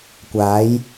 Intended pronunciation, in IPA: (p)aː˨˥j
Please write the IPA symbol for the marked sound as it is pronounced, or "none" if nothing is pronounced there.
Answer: kʷ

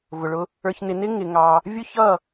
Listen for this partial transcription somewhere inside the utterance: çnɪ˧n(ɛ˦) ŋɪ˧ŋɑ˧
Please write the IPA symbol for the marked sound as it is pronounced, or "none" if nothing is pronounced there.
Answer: ɪ˦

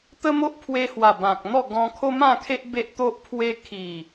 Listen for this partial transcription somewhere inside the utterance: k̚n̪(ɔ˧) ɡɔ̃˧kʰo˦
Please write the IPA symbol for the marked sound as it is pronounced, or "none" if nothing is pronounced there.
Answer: ɔ˥˧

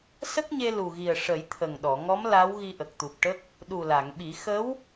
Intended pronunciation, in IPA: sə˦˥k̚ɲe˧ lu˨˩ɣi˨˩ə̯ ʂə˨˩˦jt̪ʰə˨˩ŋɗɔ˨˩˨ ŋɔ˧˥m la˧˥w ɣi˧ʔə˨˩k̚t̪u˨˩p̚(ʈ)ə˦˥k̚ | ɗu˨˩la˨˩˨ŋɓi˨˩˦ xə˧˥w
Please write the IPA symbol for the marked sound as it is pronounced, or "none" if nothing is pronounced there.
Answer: ʈ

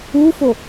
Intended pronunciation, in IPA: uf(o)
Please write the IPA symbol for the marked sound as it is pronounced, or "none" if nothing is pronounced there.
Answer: o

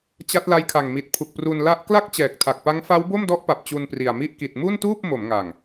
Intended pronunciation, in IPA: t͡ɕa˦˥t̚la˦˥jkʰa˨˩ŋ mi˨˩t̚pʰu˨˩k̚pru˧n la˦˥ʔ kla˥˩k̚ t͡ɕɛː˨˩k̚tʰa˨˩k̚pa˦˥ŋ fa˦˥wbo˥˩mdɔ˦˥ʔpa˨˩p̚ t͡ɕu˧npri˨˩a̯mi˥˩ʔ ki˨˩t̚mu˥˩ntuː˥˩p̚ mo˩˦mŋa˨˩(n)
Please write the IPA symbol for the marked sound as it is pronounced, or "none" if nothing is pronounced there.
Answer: ŋ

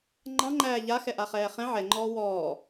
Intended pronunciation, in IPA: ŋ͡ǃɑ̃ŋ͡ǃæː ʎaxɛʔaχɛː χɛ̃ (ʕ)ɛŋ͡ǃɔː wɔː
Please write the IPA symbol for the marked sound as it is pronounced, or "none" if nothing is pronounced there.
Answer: ʕ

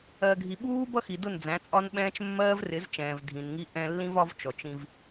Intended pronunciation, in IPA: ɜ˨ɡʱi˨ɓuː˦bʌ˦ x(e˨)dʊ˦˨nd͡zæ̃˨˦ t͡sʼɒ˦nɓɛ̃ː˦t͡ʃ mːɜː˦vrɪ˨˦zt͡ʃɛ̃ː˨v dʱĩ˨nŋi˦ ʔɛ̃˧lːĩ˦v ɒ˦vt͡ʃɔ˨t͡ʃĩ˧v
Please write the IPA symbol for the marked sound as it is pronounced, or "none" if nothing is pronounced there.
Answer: i˨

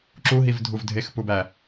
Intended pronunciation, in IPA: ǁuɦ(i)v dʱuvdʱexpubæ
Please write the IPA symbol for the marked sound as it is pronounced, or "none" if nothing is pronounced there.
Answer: i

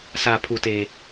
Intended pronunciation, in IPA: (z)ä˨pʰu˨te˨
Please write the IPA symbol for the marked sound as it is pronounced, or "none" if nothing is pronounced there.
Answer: s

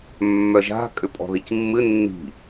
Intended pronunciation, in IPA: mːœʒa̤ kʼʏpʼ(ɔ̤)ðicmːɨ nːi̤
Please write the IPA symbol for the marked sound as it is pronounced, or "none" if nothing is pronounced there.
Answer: ɔ̤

